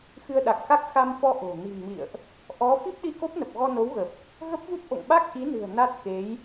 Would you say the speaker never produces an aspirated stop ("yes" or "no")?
yes